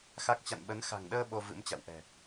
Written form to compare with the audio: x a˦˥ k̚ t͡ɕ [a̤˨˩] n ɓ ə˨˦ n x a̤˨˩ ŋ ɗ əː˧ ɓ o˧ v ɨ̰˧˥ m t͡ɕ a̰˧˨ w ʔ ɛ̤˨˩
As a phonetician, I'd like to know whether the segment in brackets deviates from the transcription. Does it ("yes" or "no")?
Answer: yes